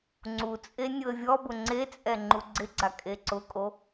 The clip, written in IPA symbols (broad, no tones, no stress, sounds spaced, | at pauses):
ŋ͡ǀ u t͡sʼ e nʲ ʊ ə̯ vʲ ɔ b ʊ ŋ͡ǀ e t͡sʼ ɛ ŋ͡ǃ u ɡ͡ǀ ɪ ɡ͡ǀ a kʼ e ǀ ʊ kʼ o